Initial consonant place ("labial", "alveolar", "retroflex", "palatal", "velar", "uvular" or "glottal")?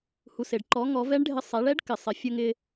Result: glottal